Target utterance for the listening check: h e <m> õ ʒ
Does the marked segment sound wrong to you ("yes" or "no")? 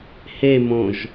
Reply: no